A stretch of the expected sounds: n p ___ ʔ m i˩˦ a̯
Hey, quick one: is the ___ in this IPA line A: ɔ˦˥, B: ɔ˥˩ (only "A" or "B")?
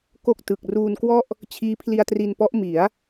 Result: A